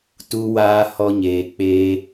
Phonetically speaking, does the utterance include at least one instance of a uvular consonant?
no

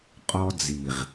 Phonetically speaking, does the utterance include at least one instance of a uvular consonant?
yes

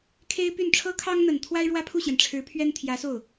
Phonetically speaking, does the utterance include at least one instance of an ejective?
no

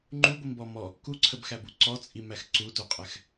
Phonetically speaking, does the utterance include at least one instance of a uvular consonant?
yes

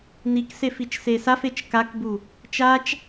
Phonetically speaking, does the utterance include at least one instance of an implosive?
no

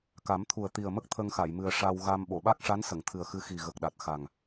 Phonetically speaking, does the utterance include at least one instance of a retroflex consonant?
yes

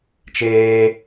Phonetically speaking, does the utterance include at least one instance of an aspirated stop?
no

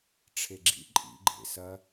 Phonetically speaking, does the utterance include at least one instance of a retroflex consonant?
yes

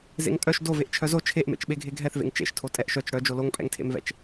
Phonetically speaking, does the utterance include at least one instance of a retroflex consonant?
yes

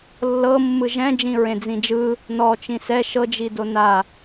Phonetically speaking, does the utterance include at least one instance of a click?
no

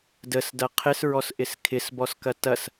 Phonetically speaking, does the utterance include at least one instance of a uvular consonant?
yes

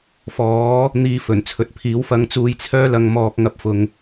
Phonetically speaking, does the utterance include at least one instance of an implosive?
no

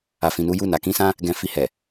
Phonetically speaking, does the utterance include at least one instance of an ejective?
no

